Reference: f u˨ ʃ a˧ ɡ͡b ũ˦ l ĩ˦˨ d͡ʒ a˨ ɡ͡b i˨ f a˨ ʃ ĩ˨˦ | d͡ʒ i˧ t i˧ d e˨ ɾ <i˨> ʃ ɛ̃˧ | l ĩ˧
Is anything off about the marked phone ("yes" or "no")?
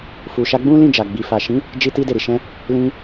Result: no